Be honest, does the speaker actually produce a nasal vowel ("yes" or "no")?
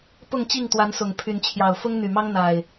no